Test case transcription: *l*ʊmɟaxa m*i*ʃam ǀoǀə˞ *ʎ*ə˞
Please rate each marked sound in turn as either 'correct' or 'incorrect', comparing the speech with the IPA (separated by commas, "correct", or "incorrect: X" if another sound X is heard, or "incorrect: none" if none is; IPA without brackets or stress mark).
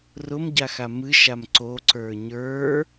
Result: incorrect: r, incorrect: ɨ, incorrect: ɲ